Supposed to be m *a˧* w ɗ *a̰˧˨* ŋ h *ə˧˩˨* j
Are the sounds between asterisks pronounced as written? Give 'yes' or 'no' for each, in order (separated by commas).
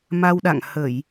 yes, yes, yes